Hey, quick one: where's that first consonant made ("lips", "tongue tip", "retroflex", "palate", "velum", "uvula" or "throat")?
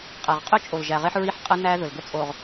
uvula